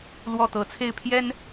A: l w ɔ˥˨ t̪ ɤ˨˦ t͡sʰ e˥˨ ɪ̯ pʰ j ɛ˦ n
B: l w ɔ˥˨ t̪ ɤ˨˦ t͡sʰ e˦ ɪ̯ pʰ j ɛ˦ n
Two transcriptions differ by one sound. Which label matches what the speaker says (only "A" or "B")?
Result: A